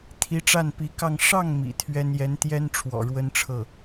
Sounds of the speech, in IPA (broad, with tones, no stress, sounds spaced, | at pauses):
t̪ʰ i˧˥ ʈ͡ʂ a˥˩ n p i˧˥ k ɑ˥˧ ŋ ʂ ɑ˥˩ ŋ m ḭ˨˩ t̪ʰ ɥ ɛ˥ n j ɛ˧˥ n t̪ j ɛ˥ n ʈ͡ʂʰ w ɔ̰˨˩ ɻ w ə˥ n ʈ͡ʂʰ ɤ˥˩